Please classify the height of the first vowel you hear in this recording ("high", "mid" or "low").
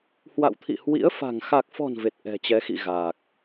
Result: low